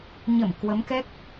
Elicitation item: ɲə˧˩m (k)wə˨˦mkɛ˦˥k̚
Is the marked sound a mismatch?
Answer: no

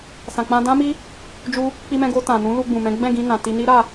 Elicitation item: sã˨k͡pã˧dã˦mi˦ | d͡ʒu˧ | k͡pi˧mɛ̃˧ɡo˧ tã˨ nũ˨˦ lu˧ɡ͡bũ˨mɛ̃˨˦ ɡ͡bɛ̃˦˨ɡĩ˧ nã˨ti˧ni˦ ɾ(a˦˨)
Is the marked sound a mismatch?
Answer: no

